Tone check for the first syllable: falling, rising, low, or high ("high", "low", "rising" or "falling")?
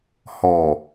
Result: low